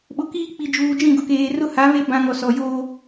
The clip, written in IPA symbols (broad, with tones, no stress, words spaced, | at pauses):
ɓʊ˨kiː˦ k͡pi˨d͡ʒuː˨d͡ʒĩ˦˨ ɡʊ˨keː˨rʊ˦ ha˨˦βe˦ bã˦ ŋɔ˨sɔ˨joː˦